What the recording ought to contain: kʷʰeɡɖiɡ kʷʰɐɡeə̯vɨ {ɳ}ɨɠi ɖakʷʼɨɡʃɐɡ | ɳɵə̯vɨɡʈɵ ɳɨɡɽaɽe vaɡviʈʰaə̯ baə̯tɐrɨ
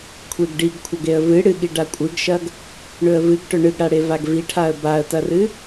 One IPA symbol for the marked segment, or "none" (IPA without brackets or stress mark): ɽ